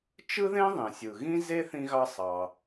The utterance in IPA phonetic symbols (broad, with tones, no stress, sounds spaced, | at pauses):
t͡ʃ ɯ˥ ð ẽ˥ ðˤ ĩ˩ sʲ ɯ˩ ɣ ĩ˥ z e˥ θ ĩ˧ ɣ ɑ˧ sˤ ɑ˩